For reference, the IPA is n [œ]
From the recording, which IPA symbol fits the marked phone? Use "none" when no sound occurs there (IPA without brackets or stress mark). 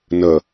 ə